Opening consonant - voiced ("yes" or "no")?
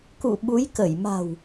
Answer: no